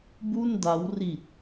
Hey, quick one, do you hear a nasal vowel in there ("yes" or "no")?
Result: no